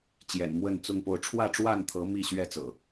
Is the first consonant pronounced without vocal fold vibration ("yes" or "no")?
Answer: yes